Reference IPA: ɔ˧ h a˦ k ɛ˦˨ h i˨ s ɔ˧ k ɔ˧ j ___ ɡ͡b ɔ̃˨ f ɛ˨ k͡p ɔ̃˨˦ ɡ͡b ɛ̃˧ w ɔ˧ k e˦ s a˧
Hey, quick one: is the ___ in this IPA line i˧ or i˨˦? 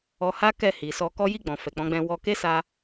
i˧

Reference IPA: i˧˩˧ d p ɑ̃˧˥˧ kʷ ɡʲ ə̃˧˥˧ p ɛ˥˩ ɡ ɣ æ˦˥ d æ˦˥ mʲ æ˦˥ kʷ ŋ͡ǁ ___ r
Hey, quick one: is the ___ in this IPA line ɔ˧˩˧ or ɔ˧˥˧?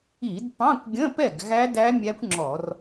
ɔ˧˩˧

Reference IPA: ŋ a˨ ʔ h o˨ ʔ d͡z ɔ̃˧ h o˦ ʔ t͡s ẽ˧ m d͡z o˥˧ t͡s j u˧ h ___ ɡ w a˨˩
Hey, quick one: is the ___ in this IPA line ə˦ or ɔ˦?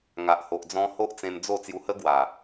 ə˦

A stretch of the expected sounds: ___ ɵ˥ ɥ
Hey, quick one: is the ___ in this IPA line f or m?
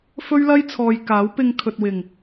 f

